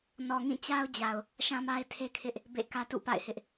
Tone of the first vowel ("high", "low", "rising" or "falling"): low